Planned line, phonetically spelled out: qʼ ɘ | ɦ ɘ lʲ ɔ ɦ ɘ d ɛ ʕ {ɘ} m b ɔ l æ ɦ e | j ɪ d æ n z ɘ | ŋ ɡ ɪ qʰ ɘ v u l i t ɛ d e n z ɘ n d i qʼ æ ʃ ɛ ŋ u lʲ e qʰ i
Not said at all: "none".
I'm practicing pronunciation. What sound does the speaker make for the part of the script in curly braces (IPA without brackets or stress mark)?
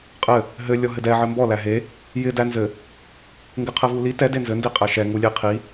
ɘ